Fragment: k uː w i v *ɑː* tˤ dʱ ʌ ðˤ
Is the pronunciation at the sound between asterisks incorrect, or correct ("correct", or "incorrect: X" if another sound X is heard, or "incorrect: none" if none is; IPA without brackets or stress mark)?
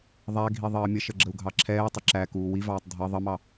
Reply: correct